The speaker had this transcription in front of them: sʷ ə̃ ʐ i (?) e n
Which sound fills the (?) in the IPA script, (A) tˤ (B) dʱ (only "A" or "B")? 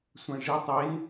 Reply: A